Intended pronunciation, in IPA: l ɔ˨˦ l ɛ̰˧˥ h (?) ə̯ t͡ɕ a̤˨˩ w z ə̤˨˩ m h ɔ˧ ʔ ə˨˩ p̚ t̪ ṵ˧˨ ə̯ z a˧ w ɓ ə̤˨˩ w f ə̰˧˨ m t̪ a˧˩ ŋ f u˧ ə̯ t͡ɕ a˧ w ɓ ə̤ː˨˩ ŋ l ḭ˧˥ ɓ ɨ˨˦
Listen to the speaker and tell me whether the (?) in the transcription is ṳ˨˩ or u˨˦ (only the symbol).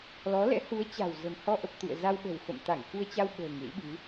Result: u˨˦